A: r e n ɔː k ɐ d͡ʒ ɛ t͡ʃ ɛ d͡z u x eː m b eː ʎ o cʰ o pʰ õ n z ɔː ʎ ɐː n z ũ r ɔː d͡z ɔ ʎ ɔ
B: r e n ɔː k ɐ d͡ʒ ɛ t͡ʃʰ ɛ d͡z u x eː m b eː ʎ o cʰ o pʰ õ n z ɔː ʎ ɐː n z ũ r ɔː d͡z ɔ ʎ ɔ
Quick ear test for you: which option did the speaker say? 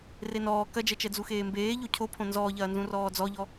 A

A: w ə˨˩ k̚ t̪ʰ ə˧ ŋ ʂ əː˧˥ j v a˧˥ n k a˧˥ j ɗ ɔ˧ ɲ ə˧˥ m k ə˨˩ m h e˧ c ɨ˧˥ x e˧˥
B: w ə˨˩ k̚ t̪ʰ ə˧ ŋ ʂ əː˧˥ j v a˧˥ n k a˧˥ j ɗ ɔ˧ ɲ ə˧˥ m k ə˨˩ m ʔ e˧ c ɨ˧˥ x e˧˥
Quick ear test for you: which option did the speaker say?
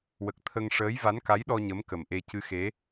B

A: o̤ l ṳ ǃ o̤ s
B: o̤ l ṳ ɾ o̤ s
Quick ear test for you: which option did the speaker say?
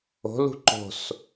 A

